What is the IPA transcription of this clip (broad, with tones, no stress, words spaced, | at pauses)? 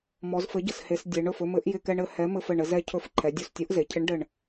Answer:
mɔ˩˧zfɘ˨˥ɟə˧˩she˩˧s dʲe˩˧ɳɵ˧˩fɵ˧mɘ˨˥ʔ jɪ˧˩kɛ˧ɳɘ˩˧ hɛ˨˥ mɘ˧fɘ˧˩ɳɘ˩˧ zɛ˧cʰɵ˧˩f ǃʰɛ˩˧dʲo˧˩stʲo˨˥ʔze˩˧ cʰɪ˨˥ɳ ɖɘ˧˩ɳ